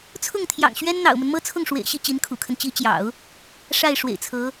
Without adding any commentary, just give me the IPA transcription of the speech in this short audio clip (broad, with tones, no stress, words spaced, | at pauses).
t͡sʰʊ˥˩ŋt̪ʰjɑ̰˨˩ŋɕɥɛ˥n n̪ɑ̰˨˩ʊ̯mə˦nmɤ˥ t͡sʰʊ˥˩ŋʂwḛ˨˩ɪ̯ɕi˥˩ t͡ɕi˧˥nkʰṵ˨˩kʰə˦n t͡ɕi˧˥t͡ɕjɑ̰˨˩˦ʊ̯ | ʂa˥˩ɪ̯ ʂwḛ˨˩ɪ̯t͡sʰɤ˧˥